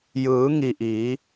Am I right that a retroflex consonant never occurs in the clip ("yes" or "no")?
yes